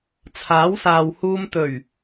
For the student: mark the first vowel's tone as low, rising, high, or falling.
rising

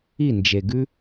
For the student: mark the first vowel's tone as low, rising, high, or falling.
falling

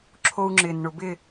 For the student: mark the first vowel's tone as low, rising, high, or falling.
high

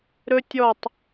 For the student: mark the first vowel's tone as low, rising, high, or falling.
high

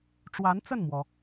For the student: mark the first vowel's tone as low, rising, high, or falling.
rising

